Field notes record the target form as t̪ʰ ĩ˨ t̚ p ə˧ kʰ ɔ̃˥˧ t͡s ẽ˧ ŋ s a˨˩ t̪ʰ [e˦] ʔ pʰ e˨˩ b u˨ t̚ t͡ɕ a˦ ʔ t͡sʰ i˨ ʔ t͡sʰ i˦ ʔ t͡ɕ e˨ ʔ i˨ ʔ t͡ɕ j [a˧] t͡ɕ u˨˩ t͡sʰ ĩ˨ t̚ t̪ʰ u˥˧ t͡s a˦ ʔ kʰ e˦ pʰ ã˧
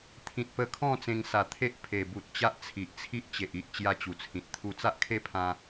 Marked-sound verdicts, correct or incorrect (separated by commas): correct, incorrect